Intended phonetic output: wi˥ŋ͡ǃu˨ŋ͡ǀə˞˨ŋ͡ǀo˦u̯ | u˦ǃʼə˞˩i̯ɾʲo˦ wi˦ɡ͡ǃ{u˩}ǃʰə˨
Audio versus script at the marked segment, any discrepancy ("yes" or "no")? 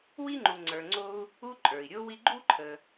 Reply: yes